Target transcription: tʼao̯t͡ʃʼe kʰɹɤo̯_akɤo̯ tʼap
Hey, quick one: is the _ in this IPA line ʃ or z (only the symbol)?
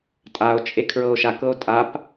ʃ